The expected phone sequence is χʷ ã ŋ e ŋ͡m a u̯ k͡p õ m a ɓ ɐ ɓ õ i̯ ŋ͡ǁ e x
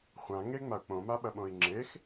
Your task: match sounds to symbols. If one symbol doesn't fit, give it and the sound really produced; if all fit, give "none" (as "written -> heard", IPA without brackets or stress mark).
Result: none